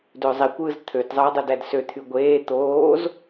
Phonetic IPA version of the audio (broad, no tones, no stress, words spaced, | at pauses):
døzˤikʷɯːz t̪ʰøtzˤɯː dˤidædsø t̪ʰyɡʷeː t̪oːz